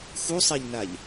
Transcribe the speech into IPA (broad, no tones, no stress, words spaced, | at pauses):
xusˤɛʎnaʎ